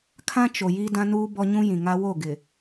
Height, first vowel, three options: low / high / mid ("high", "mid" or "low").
low